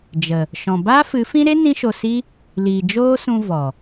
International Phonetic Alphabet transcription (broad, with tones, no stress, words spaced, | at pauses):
d͡ʒə˨ | ʃɔ̃˨ baː˦fɨ˨˦fĩ˦ ɾe˦ nĩ˦ʃo˧si˦ | liː˨d͡ʒoː˦sũ˧ vɔ˨